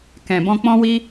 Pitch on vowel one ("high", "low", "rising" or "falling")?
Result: low